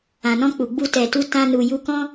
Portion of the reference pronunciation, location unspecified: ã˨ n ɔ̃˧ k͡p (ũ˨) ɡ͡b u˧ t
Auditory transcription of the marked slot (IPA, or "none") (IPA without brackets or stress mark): u˨